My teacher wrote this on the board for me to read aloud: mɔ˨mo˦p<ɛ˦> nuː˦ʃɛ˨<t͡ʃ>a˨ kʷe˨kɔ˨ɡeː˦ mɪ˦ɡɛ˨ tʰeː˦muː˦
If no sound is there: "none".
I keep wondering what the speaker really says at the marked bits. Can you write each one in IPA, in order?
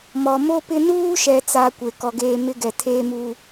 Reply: ɪ˦, t͡s

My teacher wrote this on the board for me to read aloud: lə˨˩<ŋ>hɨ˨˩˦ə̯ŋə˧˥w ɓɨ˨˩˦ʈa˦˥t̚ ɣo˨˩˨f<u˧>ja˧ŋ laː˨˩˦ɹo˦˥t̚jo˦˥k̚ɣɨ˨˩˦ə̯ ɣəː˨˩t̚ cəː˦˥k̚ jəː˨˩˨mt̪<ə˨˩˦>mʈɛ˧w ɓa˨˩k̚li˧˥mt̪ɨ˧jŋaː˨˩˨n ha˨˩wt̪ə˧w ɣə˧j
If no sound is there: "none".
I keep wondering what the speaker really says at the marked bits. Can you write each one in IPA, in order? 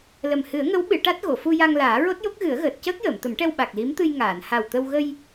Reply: m, u˧, ə˨˩˦

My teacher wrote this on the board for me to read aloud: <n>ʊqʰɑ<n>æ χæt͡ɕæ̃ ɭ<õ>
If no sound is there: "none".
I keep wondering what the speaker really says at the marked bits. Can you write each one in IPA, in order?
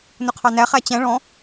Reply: n, n, ɔ̃

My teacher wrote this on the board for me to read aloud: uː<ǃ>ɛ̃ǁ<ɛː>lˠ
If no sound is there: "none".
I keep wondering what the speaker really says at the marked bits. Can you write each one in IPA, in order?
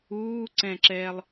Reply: ǀ, ɛː

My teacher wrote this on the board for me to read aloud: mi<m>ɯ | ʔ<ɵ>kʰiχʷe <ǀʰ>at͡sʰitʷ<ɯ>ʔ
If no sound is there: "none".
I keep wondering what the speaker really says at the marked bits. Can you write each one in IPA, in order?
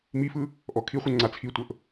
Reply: f, ɔ, ŋ͡ǀ, ɤ

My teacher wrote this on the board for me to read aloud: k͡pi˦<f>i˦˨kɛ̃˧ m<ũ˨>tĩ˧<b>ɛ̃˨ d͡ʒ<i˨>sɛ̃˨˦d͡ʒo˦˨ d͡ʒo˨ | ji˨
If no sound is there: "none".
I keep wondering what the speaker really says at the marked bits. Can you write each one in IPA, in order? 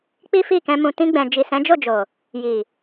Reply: f, ũ˨, ɡ͡b, i˨

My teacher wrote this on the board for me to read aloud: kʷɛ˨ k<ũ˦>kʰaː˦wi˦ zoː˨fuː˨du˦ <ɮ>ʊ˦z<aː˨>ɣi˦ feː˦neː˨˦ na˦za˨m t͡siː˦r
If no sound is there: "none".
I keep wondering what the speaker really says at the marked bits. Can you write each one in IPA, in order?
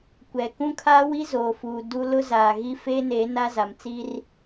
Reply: ũ˦, l, aː˨

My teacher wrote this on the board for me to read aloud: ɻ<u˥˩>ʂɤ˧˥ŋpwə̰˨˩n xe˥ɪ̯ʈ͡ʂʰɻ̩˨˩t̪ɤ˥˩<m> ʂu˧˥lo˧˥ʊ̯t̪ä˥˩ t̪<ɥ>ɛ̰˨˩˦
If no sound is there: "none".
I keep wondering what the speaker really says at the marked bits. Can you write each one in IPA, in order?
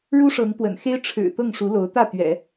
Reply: u˥, ŋ, ɥ

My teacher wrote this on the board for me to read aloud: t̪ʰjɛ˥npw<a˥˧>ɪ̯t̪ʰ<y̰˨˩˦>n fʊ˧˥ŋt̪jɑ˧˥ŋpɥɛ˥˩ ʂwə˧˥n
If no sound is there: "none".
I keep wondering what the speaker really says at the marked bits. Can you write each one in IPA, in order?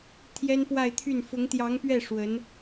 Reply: a˥˧, y˥˩

